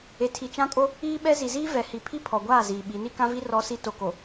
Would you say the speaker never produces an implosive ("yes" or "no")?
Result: no